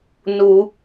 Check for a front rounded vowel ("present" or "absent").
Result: absent